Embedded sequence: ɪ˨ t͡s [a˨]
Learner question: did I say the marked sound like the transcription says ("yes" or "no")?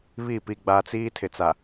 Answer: yes